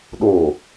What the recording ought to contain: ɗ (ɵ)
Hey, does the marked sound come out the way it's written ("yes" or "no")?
no